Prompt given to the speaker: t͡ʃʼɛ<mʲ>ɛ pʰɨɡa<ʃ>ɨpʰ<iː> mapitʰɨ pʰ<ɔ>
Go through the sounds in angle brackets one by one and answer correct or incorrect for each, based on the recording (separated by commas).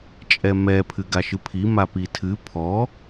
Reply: incorrect, correct, incorrect, correct